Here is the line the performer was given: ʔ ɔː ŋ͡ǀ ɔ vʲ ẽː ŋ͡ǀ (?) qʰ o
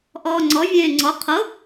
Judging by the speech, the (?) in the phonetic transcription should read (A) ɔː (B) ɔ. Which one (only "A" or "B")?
B